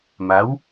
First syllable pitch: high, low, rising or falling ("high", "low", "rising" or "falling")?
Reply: rising